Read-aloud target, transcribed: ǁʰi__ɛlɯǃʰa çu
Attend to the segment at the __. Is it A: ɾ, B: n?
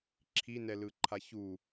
B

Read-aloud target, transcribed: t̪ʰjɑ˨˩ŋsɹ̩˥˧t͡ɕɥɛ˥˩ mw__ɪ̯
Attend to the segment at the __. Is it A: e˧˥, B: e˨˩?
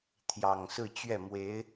A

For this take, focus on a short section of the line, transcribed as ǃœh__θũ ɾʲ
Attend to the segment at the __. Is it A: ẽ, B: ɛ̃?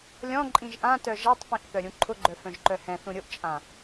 B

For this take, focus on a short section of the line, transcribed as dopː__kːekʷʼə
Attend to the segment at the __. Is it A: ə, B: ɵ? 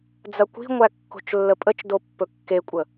B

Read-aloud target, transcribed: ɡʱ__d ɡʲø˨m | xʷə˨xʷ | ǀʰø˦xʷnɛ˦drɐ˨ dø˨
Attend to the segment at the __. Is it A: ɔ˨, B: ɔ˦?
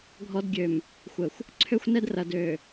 B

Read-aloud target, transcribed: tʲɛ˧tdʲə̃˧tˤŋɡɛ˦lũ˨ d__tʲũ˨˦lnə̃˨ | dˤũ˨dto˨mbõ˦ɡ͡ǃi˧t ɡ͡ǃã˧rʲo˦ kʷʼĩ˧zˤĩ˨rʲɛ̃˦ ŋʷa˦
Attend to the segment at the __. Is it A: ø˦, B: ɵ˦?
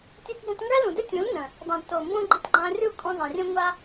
B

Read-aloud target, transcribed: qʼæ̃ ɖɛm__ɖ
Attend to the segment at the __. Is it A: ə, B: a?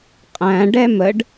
A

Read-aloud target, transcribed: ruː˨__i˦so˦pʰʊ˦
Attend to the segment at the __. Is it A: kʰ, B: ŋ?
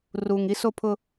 B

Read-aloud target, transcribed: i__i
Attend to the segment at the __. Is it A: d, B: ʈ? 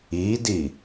A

